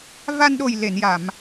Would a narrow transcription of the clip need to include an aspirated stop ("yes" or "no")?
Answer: no